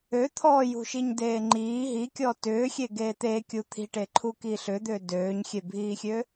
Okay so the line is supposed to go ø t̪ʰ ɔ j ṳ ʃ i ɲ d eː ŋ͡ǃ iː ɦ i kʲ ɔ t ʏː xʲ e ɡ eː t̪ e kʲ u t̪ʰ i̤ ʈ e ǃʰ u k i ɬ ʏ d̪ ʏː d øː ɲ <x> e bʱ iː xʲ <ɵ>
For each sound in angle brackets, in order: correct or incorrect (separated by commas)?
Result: incorrect, incorrect